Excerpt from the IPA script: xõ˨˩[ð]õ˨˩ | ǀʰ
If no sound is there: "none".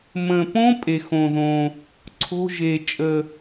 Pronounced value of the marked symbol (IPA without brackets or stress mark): ð